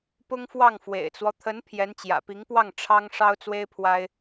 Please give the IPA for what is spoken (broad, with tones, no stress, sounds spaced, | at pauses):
p ʊ˥ ŋ f w ɑ˥˩ ŋ f w ḛ˨˩ ɪ̯ t͡s w ɔ˦ t̪ʰ ə˧˥ n pʰ j ɛ˧˥ n t͡ɕ j ä̰˨˩ p i˧˥ ŋ p w ɑ˥˩ ŋ ʈ͡ʂʰ ɑ˥ ŋ ʂ ɑ˥ ʊ̯ t͡s w e˥ ɪ̯ pʰ w a˥ ɪ̯